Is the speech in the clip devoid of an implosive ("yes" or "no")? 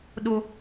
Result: no